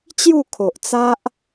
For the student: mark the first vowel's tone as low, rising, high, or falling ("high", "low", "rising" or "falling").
falling